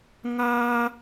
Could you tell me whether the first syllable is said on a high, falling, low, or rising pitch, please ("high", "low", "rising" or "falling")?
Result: high